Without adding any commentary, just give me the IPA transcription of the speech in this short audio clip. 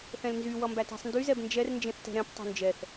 θ ɛ̃ l n z y w ʌ m b æ t æ̤ sˤ n d y z ɛ b n d͡ʒ ɛ r n d͡ʒ ẽ θ t ɛ̤ ɾ ɛ̃ p tˤ o̤ n d͡ʒ ɛ θ

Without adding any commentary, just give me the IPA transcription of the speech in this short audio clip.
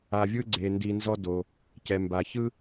a˩ vʲ ɯ˧ ɡ͡ǀ e˩ n d i˩ n z ɔ˧ d o˩ | c ɛ˩ m b a˩ ç ɯ˥

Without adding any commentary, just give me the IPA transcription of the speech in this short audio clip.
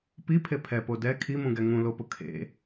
p i pʰ e pʰ ɛ p o d ɛ kʰ i m ũ ɡ ɛ ŋ ũ l o p ʊ kʰ ḛ

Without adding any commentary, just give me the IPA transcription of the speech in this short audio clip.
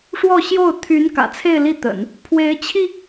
ʂ w ɔ˥˧ ɕ j o˥˩ ʊ̯ t̪ʰ y˧˥ n k ä̰˨˩ t͡sʰ e˥˧ ɪ̯ l i˥˩ t̪ ə̰˨˩˦ n | pʰ w e˧˥ ɪ̯ t͡ɕʰ i˧

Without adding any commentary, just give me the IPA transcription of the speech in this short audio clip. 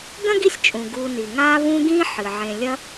ɡ ɐ̃˥ ɡ i˦ sʲ t͡ʃʼ ũ˩ ɡ u˨ n i˩ ŋ aː˦ β ũ˦ ɡ ĩ˦ ħ ɨ˩ ʕ ẽ˨ lʲ ɐ˦

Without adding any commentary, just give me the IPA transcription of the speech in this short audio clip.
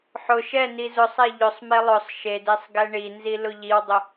ħ ʊ ʃ ɛ n i z ʊ sˤ ɛ ʎ ʊ sˤ m e lˠ ʊ sˤ ʃ e d e sˤ ɡ ɛ ɳ i n z i l ʊ ʎ i w dˤ ʊ

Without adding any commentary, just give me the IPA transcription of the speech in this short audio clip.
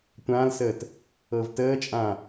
tʷ ã l s əː t | ɤ v t əː t͡ʃʼ ã

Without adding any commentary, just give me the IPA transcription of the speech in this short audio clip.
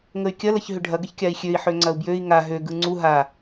ŋ ə y̯ kʲ ɐ l ɐ ç ɦ ʏ ɖʱ ɐ ɡ ə ç kʲ a i̯ xʲ ø i̯ ħ ø ŋ͡ǀ ɐ u̯ b j ø i̯ ŋ a ɦ ø ɡ ɯ ŋ͡ǀ u ɦ a

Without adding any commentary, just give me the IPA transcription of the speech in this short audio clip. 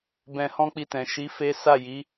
b ɛ̃˧ h ɔ̃˦ k͡p i˧ t ɛ̃˨ ʃ i˨˦ f e˦ s a˦˨ j i˨˦

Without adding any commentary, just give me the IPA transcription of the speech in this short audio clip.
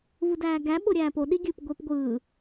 v ɯ d æː ɡ æ ɓ o ɾʲ æː p o ɗ i ɡʲ ɯ p ɡʷ e p ɡʷ ɯː

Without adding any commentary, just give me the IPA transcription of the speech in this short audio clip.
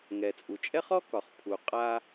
ŋ ɛ˩ t͡sʼ u˩ t͡ʃʼ ɛ˥ χ ɔ˥ k ɒ˩ χ pʰ u˩ qʼ a˧

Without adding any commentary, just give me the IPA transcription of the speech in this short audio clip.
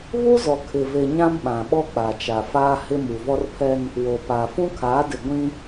β u˦ z ɔ˨ kʰ ɪ˨ v e˨ ɲ ã˦ m ɓ ã˨ ɓ ɔ˦ k͡p a˨ t͡ʃ a˨ f aː˦ h ɪ˦ m u˨ v ɔ˦ r pʰ ɛ˦ n | w o˨ p a˨ f ũ˦ kʰ aː˨˦ d ɪ˨ ɡʷ ĩ˦

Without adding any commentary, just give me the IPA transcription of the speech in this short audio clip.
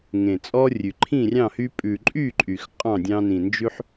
ŋ ẽ˨˩ t͡sʼ ɔ˦ rʲ ʉ˨˩ ǃʰ ĩ˥˨ rʲ ɑ̃˥˨ h y˦ pʼ ʉ˨˩ ǃʼ y˥˨ ǃʼ y˨˩ x qʼ ɑ̃˥˨ dʲ ɑ̃˦ n ĩ˨˩ n d͡ʒ ʉ˦ ħ

